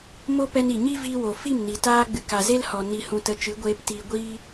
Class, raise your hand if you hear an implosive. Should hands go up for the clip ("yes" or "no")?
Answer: no